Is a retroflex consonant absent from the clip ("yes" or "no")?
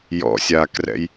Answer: yes